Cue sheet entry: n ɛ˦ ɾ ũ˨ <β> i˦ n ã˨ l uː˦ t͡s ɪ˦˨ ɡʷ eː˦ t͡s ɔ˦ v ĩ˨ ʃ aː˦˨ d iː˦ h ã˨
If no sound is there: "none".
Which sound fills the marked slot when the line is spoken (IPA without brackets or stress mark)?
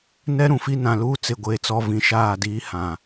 f